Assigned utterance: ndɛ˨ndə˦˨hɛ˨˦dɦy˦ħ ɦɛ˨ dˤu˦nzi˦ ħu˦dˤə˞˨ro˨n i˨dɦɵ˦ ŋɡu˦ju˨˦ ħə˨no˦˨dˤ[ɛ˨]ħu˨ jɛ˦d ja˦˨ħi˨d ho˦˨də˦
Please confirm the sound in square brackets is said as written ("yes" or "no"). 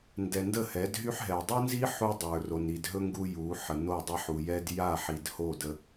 no